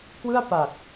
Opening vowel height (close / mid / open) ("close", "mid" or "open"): close